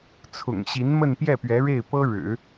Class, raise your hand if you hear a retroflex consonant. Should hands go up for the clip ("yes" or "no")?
yes